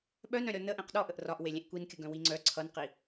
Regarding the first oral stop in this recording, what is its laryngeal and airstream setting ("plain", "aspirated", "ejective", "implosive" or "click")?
implosive